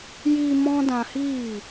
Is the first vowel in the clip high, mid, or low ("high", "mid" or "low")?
high